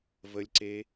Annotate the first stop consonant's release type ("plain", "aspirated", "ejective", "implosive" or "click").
click